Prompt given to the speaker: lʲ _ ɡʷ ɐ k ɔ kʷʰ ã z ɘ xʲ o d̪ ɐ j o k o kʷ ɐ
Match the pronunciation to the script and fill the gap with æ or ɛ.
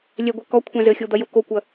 ɛ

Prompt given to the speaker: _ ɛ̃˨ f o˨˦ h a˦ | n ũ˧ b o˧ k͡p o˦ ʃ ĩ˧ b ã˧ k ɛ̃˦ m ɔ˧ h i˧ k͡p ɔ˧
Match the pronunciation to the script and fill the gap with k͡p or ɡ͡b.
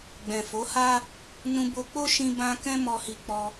ɡ͡b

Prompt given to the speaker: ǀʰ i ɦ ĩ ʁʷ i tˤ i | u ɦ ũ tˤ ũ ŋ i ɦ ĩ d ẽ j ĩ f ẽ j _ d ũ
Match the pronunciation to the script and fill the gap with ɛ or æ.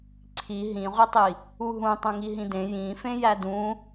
æ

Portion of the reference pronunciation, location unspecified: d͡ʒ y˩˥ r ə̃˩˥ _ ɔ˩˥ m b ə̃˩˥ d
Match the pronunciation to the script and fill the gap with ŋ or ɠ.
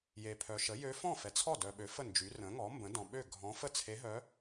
ŋ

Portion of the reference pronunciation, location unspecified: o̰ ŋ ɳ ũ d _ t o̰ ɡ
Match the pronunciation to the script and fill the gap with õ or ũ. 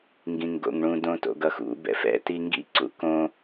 õ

